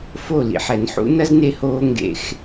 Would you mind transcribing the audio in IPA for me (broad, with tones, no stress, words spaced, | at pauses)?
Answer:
fo˦˨ lḭ˧ħɛ˨nħṵ˦ nɐ˦zne˧hoː˧ ŋɡḛ˧x